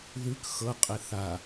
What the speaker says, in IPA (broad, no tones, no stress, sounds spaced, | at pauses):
ð ʉ k x ɤ qʼ e θ a